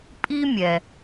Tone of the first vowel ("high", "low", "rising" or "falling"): high